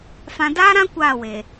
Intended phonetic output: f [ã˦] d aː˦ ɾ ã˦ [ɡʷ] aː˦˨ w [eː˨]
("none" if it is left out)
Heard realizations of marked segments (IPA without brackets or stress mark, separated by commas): ã˦, kʷ, eː˨